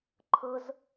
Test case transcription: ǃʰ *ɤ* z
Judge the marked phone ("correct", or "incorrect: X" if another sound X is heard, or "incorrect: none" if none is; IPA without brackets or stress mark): correct